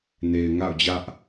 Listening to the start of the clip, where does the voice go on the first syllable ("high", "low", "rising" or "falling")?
low